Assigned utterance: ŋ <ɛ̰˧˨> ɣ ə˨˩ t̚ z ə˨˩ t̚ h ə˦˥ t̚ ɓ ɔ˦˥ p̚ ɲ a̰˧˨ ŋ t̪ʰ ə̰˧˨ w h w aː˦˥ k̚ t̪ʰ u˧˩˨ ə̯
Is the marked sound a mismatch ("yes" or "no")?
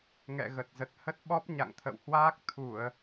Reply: no